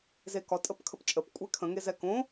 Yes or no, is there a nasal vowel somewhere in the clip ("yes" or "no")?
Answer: yes